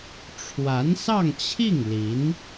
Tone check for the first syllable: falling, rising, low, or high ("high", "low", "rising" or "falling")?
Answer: rising